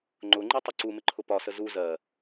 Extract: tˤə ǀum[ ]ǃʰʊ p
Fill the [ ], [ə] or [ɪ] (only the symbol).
ɪ